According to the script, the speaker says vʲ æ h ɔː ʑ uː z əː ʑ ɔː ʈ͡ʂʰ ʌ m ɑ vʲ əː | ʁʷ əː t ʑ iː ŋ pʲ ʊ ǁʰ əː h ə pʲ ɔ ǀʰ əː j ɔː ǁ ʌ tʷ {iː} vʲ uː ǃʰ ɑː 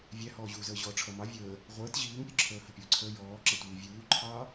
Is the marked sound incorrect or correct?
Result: correct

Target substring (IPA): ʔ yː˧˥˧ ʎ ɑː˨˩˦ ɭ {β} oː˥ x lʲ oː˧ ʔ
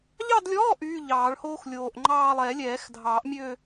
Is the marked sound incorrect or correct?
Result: incorrect: h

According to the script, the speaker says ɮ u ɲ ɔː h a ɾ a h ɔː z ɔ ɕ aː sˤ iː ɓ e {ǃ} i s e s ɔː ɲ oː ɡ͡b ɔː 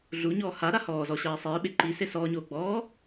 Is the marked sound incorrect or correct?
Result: correct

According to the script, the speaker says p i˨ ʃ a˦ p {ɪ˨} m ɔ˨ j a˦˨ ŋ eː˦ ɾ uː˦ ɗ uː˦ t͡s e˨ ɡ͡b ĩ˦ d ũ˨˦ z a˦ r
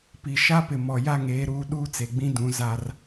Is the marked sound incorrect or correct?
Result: correct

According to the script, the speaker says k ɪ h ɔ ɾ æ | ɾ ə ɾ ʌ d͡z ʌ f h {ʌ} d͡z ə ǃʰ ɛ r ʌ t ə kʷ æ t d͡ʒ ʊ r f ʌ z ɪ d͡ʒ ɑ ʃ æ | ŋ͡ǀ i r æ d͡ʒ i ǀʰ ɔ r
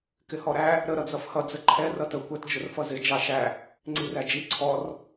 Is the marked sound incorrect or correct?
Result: correct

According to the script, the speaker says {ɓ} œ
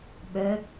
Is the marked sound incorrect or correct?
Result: correct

